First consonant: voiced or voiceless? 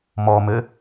voiced